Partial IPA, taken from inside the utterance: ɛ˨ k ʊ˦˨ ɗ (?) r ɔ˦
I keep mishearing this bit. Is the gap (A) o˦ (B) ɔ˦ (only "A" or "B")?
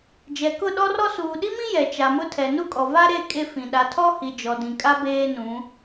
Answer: B